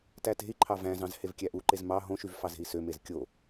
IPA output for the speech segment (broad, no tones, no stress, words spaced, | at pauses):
tæte̤i̯ǃʰɑ væ̃zɑ̃z hevkʲæʔuǃez mɑ ɦõʃyv fɑze̤i̯sømez kʲo